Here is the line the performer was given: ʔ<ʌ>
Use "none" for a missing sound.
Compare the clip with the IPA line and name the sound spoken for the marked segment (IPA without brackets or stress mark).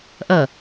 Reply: ʌ